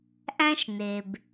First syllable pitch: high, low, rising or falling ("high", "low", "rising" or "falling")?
high